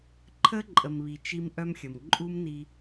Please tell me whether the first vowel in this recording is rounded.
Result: no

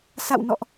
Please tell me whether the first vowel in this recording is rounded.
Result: no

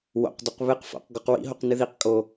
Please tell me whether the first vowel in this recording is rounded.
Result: yes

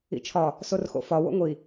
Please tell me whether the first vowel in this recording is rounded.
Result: no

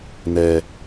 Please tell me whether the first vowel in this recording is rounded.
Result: no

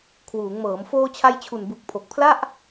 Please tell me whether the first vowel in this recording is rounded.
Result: yes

